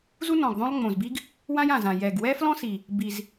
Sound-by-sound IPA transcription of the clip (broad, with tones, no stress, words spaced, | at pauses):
zu˥nɔ̃˨˩ɡ ðˤõ˥lˠŋ͡mõ˨˩zbi˥ɡ | wã˥jã˨˩zã˨˩ jɛ˨˩ɡ wɛ˥flɔ̃˥si˨˩ | bi˨˩z